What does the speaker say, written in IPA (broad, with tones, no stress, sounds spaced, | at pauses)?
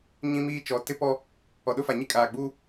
ɲ ĩ˦ m iː˦ t͡ʃ ɔ˨˦ t ɪ˦ p ɔ˦ | ɔ˨ ɗ ʊ˦ f a˨ ɲ i˦ kʼ aː˨ ɡ͡b uː˦